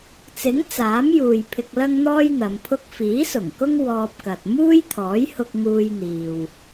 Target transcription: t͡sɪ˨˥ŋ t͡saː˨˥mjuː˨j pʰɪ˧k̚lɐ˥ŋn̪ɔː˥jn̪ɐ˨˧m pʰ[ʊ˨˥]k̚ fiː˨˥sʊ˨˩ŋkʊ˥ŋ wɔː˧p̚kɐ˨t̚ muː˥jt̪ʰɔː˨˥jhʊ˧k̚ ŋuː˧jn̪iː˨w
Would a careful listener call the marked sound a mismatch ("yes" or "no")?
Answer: yes